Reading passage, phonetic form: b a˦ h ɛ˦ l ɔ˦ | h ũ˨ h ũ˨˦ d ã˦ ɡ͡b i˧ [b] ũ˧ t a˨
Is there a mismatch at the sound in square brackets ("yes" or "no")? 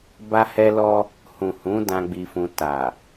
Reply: yes